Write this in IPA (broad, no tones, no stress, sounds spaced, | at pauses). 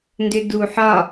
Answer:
n d ʏ d u ħ ɒ